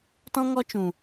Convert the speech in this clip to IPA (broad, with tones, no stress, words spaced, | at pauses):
tɔ̃˧ŋɔ˧t͡ʃũ˨